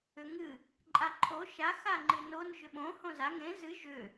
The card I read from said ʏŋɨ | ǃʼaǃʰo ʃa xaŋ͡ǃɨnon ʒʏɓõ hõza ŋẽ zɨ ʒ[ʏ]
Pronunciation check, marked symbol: correct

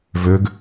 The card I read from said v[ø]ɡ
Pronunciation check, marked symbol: correct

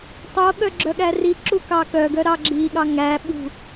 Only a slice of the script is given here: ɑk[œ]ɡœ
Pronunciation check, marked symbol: correct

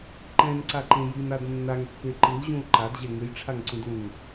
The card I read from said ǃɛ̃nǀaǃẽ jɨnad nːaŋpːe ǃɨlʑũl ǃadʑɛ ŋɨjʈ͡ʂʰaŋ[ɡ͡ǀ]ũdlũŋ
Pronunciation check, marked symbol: incorrect: ǀ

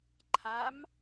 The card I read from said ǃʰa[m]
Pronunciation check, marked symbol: correct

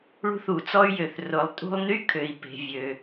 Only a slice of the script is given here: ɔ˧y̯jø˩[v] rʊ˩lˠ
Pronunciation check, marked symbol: incorrect: θ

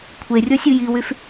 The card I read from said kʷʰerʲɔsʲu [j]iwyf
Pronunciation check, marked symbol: correct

